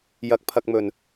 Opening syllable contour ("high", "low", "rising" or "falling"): rising